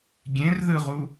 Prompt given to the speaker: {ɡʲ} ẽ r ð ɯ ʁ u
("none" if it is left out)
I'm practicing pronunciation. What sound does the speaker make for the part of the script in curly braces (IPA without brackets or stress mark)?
ɡʲ